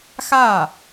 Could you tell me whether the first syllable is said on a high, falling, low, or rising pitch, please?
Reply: falling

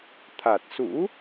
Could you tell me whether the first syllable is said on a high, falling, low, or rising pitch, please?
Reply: low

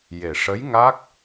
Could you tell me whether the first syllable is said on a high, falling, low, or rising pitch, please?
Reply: low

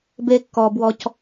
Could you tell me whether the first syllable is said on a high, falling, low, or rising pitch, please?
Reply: high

